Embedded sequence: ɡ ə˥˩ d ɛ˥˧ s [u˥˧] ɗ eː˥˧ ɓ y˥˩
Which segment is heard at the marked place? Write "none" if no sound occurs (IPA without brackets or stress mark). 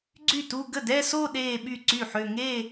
o˥˧